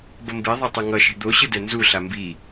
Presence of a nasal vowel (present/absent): absent